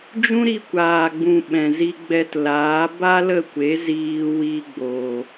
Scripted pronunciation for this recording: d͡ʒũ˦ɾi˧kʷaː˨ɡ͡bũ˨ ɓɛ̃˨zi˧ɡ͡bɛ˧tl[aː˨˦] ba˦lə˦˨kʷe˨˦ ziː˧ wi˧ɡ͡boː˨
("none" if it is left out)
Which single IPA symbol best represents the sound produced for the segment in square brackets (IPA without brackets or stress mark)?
aː˨˦